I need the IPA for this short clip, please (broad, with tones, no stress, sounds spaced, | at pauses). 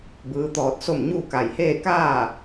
b ɯː˧˥ t̪ ɔː˧ t̚ s o˥˨ m ɲ uː˥˨ k a˧˩ j h eː˥˨ k aː˥˨